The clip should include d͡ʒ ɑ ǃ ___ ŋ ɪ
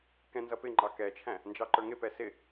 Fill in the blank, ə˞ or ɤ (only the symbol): ə˞